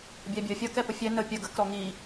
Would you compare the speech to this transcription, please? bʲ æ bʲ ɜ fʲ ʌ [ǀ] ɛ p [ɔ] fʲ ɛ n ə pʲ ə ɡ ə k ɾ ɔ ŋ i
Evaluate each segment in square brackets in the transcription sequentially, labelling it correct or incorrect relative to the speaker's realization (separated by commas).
incorrect, incorrect